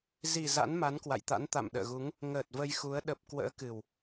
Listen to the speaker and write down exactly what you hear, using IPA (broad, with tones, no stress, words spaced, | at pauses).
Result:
zi˨˩ za̰˧˥nma˨˦nkwa̰˧˨jt̪a̰˧˥n t̪a̰˧˨mɗə̰ː˧˨ɣu˨˦ŋ | ŋəː˨˩t̚ və˧jxu˨˦ə̯ ɗə˨˩p̚ kwə̰ː˧˥kɨ˨˩w